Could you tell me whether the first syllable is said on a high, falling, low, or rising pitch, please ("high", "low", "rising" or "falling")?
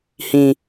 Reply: high